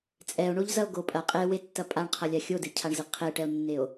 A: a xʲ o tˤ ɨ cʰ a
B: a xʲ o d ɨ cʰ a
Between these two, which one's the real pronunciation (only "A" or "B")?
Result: B